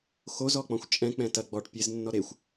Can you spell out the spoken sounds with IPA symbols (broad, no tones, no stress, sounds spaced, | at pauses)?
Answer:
x o z ɔ k͡p ɔ̃ xʷ t͡ʃʼ ɛ̃ k͡p ɛ̃ t ɐ ɡ͡b ɔ ʈ pʲ e z nː ɔ ɾ e xʷ